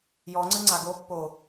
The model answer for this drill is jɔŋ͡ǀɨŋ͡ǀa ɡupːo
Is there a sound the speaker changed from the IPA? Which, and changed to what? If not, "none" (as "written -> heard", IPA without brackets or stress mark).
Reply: u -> o